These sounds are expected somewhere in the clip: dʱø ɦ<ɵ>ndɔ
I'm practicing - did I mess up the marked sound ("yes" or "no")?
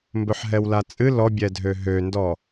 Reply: yes